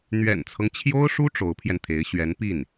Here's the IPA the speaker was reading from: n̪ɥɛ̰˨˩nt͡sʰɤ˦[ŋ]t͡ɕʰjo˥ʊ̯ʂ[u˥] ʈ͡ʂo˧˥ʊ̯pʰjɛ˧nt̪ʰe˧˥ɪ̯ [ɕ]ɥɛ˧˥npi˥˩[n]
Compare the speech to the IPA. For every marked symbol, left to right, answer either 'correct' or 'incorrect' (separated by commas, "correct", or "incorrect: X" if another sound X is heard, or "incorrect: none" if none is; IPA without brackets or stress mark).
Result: correct, correct, correct, correct